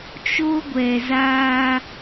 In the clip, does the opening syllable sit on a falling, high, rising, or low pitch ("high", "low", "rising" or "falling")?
high